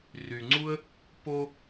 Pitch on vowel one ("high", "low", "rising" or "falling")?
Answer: low